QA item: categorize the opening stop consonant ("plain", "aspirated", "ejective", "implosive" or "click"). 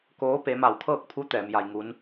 plain